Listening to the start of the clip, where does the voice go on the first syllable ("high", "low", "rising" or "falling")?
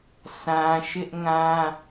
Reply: high